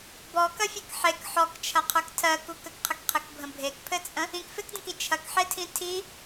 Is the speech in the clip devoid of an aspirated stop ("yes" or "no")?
no